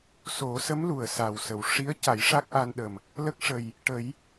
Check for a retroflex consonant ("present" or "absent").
present